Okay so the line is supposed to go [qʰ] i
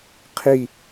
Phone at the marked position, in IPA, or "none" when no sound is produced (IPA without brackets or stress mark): qʰ